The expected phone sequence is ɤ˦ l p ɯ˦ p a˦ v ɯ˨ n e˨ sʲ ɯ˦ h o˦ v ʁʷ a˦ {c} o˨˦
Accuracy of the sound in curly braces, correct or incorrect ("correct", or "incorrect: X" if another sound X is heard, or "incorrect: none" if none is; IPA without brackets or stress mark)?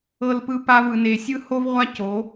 correct